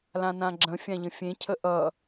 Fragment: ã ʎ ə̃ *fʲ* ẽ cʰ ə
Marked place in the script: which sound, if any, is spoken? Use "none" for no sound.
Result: fʲ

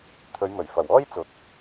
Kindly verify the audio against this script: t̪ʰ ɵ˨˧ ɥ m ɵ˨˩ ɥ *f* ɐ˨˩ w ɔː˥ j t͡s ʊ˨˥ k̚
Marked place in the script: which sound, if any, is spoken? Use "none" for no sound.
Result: f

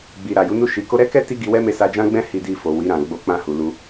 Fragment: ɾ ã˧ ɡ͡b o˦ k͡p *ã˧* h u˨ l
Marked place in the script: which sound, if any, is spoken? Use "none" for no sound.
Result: ã˧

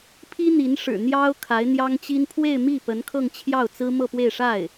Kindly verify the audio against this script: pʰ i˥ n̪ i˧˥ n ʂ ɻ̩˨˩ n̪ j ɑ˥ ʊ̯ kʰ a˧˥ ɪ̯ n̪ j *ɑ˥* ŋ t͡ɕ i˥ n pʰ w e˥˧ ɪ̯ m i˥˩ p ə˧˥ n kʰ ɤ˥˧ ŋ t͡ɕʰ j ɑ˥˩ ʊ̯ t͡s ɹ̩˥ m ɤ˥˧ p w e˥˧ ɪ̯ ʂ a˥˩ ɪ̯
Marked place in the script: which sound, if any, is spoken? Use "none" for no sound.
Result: ɑ˥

